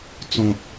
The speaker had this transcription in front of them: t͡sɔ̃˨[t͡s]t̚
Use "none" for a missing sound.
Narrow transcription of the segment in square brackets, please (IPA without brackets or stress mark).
none